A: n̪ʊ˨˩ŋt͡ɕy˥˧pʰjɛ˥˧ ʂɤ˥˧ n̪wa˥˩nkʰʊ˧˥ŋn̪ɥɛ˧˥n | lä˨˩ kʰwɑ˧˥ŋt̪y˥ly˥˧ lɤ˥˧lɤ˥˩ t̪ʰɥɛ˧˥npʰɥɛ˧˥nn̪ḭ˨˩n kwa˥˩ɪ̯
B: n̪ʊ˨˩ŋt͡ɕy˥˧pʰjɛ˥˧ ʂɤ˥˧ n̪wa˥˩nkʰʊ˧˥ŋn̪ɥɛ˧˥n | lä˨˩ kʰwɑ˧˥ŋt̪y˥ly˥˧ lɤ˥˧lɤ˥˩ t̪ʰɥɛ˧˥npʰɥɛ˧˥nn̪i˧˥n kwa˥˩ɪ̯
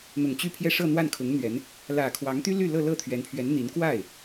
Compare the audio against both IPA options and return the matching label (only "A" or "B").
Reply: B